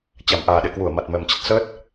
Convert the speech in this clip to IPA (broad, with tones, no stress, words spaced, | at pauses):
t͡ɕa˧˩mʔaː˨˩ɗḛ˧˨kwu˧˩ə̯ ma˨˩t̚mɛ˨˩mt͡ɕə˦˥t̚ səː˦˥t̚